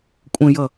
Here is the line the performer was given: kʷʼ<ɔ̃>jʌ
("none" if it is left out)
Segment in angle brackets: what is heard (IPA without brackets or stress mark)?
ə̃